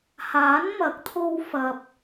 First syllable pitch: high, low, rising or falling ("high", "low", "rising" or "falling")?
rising